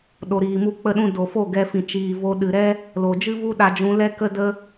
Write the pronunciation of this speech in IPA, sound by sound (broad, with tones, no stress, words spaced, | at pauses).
ɗo˨ɾiː˨mu˧ k͡pə˧ɗũ˧ do˨fo˦˨ ɡɛ˧fĩ˨ t͡ʃiː˨ vo˧ ɗɨ˨ɾɛ˦ | lo˨d͡ʒɨ˦vu˦ ɗa˧d͡ʒũ˧ lɛ˦kə˦də˦